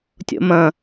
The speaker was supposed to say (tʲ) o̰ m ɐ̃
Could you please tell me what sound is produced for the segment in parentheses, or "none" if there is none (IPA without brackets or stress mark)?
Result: tʲ